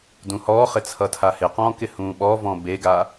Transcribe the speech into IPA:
dũhɔːχɪt͡sʰʌ tʰahɪqɔ̃ːkɪ hũːɓɔvɔ̃ beɡa

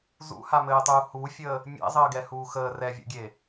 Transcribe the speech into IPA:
zṵhamɘːtˤuː hufʲəː | mʲɛ̰zˤəːɡɛhuː xəː rɛvʲṵɡʲe

